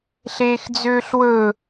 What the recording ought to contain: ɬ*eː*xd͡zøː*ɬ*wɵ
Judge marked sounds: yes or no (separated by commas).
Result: yes, yes